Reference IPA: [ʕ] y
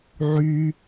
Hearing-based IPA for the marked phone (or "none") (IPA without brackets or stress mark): ʕ